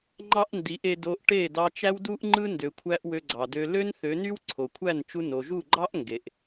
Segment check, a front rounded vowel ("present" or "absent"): present